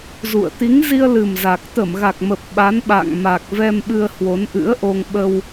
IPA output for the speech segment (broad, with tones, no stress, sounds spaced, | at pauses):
z ṵ˧˨ ə̯ t̪ i˨˦ ŋ z i˧ ə̯ l ɨ˨˩ m z a˨˩ k̚ t̪ ə˧˩ m ɣ a˨˩ k̚ m ə˨˩ p̚ ɓ a˨˦ n ɓ a̰ː˧˨ ŋ m a˨˩ k̚ v ɛ˧ m ɓ ɨ˧ ə̯ h w o˨˦ n ʔ ɨ̰˧˥ ə̯ ʔ o˧ ŋ ɓ ə˧ w